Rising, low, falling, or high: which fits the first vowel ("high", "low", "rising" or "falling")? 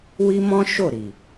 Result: high